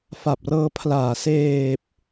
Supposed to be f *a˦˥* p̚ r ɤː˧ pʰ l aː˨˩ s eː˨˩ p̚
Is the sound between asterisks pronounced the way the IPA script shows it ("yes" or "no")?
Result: no